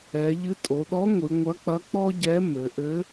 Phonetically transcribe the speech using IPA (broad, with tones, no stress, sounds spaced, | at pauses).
ɛ˩˧ ʎ ɨ˧˥ tʼ o˩˧ ɗ ɔ˧˥ ŋʷ ɨ˩˧ ŋʷ ɐ˧˥ k͡p ɐ˧˥ k͡p ɔ˥ ɟ ɛ˧˥ m ɘ˩˧ ʔ ɘ˧˥